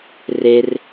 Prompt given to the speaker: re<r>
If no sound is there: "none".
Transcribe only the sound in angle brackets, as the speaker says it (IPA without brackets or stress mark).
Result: r